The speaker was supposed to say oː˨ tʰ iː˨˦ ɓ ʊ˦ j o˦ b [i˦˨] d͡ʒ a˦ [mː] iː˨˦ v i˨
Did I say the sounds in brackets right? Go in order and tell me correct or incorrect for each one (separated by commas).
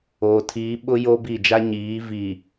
correct, incorrect